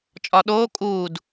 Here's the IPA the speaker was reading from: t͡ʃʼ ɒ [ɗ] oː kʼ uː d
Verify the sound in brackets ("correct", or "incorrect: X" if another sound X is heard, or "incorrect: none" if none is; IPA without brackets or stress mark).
correct